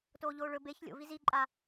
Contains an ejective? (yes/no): yes